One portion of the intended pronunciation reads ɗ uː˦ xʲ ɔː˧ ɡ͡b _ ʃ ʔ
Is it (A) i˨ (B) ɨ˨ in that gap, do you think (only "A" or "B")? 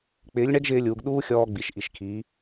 A